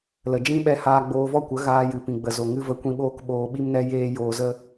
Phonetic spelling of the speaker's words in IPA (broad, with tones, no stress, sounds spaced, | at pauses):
l ə˨ d͡ʒ ĩ˦ ɓ ɛ˧ h aː˧ ɡ͡b oː˧ v ɔ˦ kʷ ə˨˦ ɣ aː˧ j ɨ˨ p ĩ˨ ɡ͡b ə˨ z o˨ ŋ ɨ˧ v ə˧ kʷ ĩ˧ ɓ oː˦ k ɓ oː˧ ɓ i˦ m n ɛ˦ j eː˦ j oː˧ z ə˦